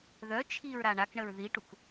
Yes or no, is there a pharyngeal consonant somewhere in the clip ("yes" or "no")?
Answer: no